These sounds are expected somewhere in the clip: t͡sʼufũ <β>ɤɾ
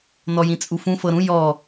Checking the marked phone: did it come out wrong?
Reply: yes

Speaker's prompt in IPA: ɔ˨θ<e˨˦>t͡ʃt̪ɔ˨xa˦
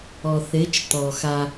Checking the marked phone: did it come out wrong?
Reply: no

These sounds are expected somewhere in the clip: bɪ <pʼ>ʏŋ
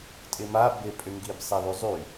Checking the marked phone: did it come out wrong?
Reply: no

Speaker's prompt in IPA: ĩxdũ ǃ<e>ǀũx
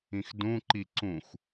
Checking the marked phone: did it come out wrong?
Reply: yes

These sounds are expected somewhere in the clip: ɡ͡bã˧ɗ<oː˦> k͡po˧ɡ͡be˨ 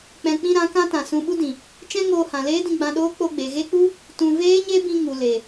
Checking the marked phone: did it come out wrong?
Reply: no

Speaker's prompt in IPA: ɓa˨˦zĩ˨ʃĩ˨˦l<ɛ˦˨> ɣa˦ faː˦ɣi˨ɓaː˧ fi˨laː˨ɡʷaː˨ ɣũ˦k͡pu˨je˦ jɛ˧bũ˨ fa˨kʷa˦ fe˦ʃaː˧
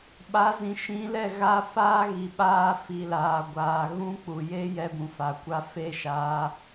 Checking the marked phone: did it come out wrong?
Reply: no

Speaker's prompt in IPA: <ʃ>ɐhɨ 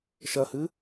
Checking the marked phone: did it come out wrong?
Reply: no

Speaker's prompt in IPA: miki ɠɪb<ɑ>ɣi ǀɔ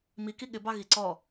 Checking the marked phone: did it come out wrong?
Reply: no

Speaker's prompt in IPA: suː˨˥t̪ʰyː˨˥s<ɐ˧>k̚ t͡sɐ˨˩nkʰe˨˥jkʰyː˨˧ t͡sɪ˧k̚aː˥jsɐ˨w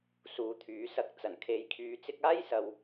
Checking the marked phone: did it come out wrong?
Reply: no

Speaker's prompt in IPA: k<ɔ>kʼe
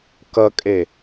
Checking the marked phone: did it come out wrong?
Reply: yes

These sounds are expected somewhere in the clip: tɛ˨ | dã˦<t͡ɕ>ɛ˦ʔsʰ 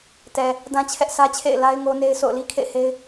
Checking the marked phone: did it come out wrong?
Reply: yes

